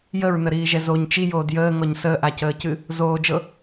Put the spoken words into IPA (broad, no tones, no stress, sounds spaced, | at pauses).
j ə ɹ n ə ɾ iː ʒ ɛ z o ɲ t͡ʃ i j oː d j əː ŋ ɔ ɲ s əː ʔ a c əː c ɨ | z oː d͡ʒ ɤ